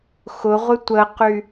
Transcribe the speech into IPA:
x ʊ ʁʷ ɪ tʷ ə q y

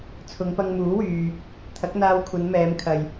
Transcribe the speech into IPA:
t͡sʰ ʊ˨˧ ŋ p ɐ˧ ŋ m uː˨˥ w yː˨ | t̪ʰ ɐ˨˥ k̚ n̪ aː˧ w kʷʰ ɐ˨˧ n m ɛː˨˧ m kʰ ɐ˨ j

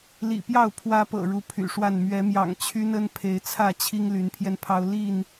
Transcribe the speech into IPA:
l ḭ˨˩ p j ɑ˥˨ ʊ̯ pʰ w ä˦ p ɤ̰˨˩ ɻ u˨˦ pʰ y̰˨˩ ʂ w a˥˨ n m ɥ ɛ˨˦ m j ɑ̰˨˩ ŋ t͡ɕʰ y˦ n ə˦ n pʰ e˨˦ ɪ̯ t͡sʰ ä˥˨ t͡ɕʰ i˦ ŋ l y˨˦ n pʰ j ɛ˧ n pʰ ɑ˦ ʊ̯ l i˥˨ n

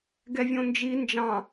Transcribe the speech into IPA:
ɡ ɛ vʲ õ n d͡ʒ i n d͡ʒ ɑ̃

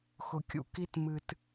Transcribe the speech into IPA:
x ʊ˨ kʲ ṵ˧ k i˧ t m ɨ˨ t

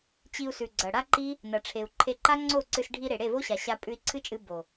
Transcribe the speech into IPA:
t͡ɕ i˧ u̯ s ʉ˨ ɡ͡ǀ ɐ˨ ɽ a˦ ǃ i˦ | n ɐ˨ ʈ͡ʂʰ e˨ u̯ ǃʰ e˧ ǃ a˦ ŋ͡ǀ o˦˨ ǀ ɨ˧ s ɖʱ i˧ ɾ e˨ ɽ e˦˨ v o˦ ɕ a˨ ɕ a˧ pʼ ʉ˧ i̯ ǀʰ ɨ˦ t͡ʃʼ ɨ˧ b o˨

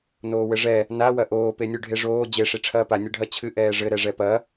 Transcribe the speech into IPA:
n oː w ɘ ʐ ɛ | n a w ɐ ʔ oː p e nʲ u ɖʱ e ʐ oː d͡ʑ e ʂ i ʈ͡ʂʰ ɐː p a nʲ ɘ ɖʱ ɐ t͡ɕʰ ɨ ʔ ɛː ʐ ɘ ɾ ɛ ʐ ɛ p ɐ

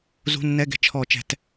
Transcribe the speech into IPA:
z ṳ˧˥˧ nː ɛ˧˥˧ ɡ ɛ̤˦˨ t͡ʃʰ ɔ˧˩˧ t͡ʃ ɛ̤˧˩˧ t

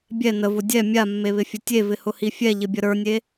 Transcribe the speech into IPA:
bʲ ɛ n ə v ʊ dʲ ɛ mʲ a mː e β ɪ fʲ ʊ tʲ e v ɪ h ʊ h i fʲ ɛ ʎ ɪ bʲ ə ɾ ə˞ nʲ e

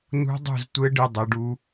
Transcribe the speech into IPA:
n ṳ˦˥ dˤ ṳ˥˨ z tʷ ɘ˦˥ ɖ ɨ˥˨ dˤ e˨˥ ɖ u˦˥

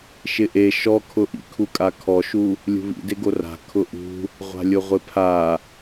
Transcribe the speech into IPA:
ʃ ɪ ʔ e ʃ ɔ kʰ ʊ ʔ ḭ kʰ u kʼ a kʰ ɔ ʃ u | lʲ ṳ β ḭ d e ɡ o r a̤ kʰ ʊ ʔ ṳ | ʁʷ a̤ lʲ ʊ ʁʷ ɪ pʰ a

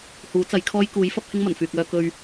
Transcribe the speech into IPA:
h uː˨˥ t͡s ɐ˨˥ j kʰ ɔː˥ j k uː˨˥ j f ɐ˥ p̚ h ɪ˥ ŋ m ɐ˨˩ n f yː˨ k̚ œː˧ k ɵ˧ ɥ

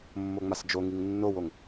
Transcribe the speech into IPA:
mː o ŋ͡m a s d͡ʒ o ŋ i ŋ nː o w o ŋ

